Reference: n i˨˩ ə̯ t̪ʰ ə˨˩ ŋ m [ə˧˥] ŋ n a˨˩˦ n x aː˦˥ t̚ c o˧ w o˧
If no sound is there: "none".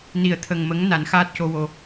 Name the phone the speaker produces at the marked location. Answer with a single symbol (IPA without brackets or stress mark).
ə˧˥